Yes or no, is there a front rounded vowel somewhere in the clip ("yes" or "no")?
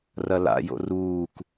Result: no